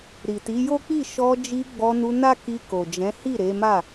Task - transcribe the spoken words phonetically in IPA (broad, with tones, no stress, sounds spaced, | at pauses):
ɾ i˨ t i˨˦ j o˦ k͡p i˦˨ ʃ ɔ˧ d͡ʒ i˧ ɡ͡b ɔ˧ n u˧ n a˦ k i˧ k o˨ d͡ʒ ɛ̃˨˦ h i˦˨ ɾ e˨˦ m a˦˨